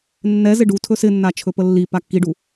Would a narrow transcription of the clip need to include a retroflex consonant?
yes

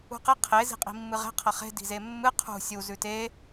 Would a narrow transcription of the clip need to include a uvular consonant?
yes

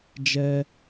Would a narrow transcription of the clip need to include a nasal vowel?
no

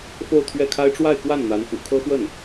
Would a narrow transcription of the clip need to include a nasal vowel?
no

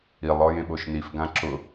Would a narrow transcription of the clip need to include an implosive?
yes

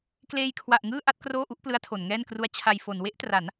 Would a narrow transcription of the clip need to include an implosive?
no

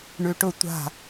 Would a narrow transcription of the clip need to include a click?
no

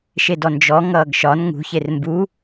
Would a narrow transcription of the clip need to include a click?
no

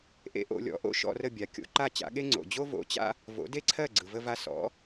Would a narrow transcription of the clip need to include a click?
yes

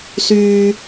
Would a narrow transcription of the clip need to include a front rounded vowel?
yes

